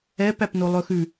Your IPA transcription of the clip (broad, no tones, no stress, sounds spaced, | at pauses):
ɛ p æ p n o lˠ ɵ x ʉ